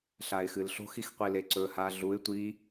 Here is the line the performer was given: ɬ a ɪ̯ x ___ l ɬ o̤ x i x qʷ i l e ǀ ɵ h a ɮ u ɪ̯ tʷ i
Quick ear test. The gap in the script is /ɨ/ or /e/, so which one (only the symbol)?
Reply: ɨ